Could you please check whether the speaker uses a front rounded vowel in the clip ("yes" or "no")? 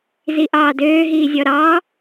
yes